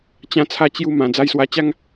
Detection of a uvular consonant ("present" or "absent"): absent